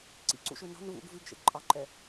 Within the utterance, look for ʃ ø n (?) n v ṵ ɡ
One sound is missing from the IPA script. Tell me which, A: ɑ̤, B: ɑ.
A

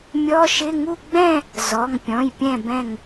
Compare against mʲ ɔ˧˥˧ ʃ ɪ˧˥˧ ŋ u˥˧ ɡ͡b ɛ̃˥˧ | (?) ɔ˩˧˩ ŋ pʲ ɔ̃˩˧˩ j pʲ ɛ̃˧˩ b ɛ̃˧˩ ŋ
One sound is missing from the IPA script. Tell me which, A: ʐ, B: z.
B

